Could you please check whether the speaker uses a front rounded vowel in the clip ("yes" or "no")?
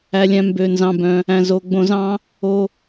yes